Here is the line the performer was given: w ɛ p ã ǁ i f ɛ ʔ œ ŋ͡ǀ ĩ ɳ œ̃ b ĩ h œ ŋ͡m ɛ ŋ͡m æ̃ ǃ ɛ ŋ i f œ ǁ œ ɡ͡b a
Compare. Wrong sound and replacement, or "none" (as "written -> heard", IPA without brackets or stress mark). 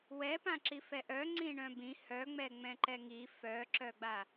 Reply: æ̃ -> ɛ̃